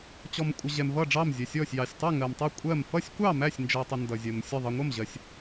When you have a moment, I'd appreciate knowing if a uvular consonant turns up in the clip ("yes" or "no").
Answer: no